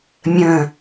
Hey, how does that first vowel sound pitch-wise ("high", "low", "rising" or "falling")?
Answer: low